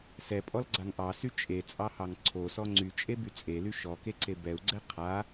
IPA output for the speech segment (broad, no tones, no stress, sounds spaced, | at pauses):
s ɛ pʼ ɔ l ɡ͡ǀ a ŋ ʔ ɑ s y t͡ʃʼ e t͡sʼ ɑ h ɑ ŋ ǀʰ o s ɔ ŋ͡ǀ y t͡ʃʼ e b y t͡sʼ e l y ʃ ɔ k e ǀ e b ɛ u̯ ɡ͡ǀ ɛ qʰ a